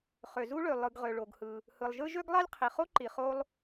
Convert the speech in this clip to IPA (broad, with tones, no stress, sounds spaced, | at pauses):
χ ø˩ z u˥ ɭ ø˩ lˠ ɯ˩ ɡ ʁ ø˩ ɭ o˩ ɡ h ɯ˩ | h ɯ˩ lˠ ʒ ɯ˥ ʒ ø˥ ɡ lˠ ɑ˥ lʲ qʰ i˩ χ o˥ ǃ i˩ χ o˥ lˠ